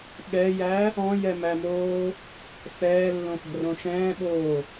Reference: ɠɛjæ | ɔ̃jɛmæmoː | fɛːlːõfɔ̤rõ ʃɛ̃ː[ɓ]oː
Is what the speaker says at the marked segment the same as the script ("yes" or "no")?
yes